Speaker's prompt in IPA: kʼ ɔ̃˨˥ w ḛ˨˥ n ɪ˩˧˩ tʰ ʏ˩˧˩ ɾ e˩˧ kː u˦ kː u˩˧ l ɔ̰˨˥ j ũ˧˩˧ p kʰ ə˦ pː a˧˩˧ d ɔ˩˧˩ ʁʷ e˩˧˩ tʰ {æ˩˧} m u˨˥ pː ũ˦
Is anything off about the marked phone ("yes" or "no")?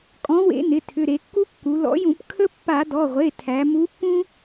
no